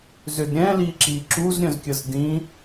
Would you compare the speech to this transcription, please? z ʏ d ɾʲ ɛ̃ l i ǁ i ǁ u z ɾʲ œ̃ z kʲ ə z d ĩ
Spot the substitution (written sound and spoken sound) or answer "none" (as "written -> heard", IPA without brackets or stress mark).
none